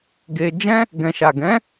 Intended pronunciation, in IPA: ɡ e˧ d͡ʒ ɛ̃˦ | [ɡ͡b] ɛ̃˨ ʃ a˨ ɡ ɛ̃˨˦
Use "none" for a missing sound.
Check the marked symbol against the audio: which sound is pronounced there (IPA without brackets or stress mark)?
ɡ